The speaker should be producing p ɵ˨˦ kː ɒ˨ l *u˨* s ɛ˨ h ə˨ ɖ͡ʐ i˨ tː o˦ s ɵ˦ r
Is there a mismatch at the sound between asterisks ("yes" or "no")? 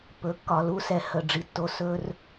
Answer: yes